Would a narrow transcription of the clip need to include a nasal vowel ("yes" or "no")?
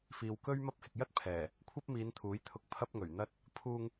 no